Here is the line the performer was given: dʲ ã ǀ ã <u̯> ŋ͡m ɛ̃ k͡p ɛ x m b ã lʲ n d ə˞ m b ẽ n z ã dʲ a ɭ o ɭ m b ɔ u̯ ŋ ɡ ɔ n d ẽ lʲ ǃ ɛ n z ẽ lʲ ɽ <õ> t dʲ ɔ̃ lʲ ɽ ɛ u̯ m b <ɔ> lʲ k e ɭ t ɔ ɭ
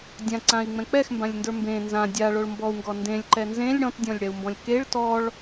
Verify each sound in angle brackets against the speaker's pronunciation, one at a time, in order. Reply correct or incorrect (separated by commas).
incorrect, incorrect, incorrect